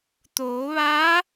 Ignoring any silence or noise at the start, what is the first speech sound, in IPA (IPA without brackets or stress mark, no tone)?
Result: t̪